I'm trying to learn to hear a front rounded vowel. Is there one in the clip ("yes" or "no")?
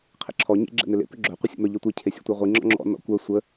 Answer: yes